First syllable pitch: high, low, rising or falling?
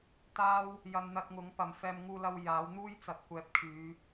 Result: high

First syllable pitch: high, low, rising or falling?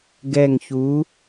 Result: low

